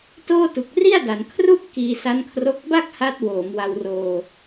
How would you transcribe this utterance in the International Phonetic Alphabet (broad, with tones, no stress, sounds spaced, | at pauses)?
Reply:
t oː˥˩ t u˨˩ k̚ r i˥˩ a̯ d a˩˦ n kʰ r u˥˩ ʔ k iː˧ s a˦˥ n kʰ r o˦˥ k̚ b a˥˩ k̚ h a˦˥ t̚ w oː˩˦ m w a˧ w r oː˧